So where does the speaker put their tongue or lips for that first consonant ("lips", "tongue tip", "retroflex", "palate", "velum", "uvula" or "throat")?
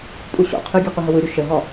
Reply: lips